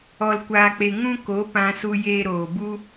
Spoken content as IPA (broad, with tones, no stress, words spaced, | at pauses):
ɔ˧lkʷaː˧k͡pe˧ ŋũ˦ko˨˦ pã˧su˧ jeː˧ɾoː˨bu˦